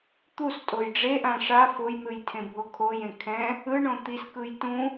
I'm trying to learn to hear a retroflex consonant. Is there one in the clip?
yes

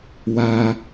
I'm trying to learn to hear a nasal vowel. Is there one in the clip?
no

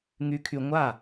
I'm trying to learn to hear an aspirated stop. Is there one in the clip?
yes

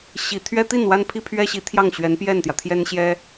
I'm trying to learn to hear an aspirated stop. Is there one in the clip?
yes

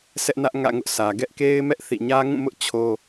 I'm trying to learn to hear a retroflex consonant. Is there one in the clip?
no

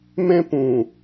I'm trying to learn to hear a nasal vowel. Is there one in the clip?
yes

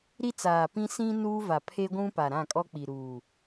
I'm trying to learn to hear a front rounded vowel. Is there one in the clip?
no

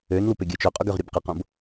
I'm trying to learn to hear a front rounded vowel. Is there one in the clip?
yes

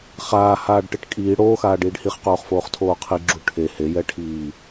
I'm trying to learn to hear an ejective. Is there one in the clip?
yes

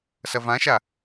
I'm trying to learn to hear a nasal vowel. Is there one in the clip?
yes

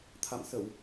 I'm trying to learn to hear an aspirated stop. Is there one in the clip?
yes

